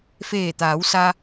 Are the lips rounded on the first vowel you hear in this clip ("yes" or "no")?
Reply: no